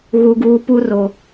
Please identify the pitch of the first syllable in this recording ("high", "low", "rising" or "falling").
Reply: low